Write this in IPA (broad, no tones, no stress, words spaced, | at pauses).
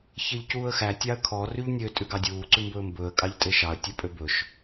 çeʎcuːə̯xæ tʲɑə̯kʰɔ ryʎnʲø tʼʉɡɑdʲuː ǀʉmbɵːmbɵːə̯ kʼɑʎtʼeʃɑə̯ tʲœpʼøbɵʃ